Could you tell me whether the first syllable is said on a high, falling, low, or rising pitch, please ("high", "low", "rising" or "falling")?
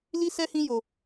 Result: high